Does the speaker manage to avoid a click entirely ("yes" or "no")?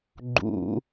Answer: no